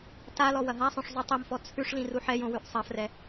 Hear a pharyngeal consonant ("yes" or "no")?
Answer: yes